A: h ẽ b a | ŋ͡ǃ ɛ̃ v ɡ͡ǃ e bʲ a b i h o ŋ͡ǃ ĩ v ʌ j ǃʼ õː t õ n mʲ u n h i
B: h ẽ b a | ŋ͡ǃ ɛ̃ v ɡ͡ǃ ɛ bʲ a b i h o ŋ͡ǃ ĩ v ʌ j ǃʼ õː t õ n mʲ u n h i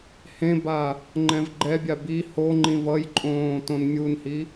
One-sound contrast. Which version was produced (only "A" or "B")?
B